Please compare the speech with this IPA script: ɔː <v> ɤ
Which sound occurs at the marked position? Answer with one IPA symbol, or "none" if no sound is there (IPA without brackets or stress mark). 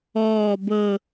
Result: b